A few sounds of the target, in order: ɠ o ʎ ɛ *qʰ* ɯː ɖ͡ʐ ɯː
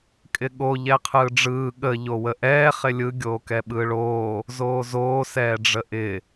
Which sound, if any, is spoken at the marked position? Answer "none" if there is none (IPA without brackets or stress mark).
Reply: qʰ